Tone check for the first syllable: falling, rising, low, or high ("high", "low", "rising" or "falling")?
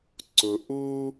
low